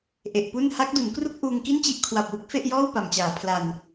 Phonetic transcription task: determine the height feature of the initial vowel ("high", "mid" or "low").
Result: mid